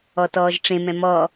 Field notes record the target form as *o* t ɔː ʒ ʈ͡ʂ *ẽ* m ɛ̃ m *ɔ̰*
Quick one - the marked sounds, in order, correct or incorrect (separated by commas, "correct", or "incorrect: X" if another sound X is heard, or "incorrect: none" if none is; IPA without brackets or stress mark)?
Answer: incorrect: ɔ, correct, incorrect: ɔ